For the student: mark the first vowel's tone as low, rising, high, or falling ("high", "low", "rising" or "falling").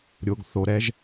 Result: low